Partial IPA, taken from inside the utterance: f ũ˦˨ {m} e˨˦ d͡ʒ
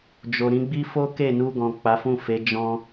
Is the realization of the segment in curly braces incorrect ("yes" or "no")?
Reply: yes